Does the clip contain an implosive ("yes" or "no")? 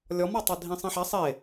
no